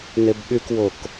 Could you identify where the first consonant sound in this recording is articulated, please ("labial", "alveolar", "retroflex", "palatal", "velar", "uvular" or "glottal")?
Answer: alveolar